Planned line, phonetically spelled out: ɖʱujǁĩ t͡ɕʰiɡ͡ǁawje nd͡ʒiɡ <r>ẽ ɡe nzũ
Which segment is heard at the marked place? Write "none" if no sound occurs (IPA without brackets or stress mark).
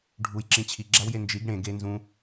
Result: ɽ